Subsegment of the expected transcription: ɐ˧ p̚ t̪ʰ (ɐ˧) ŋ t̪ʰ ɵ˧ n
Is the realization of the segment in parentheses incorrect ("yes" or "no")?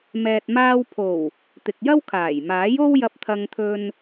no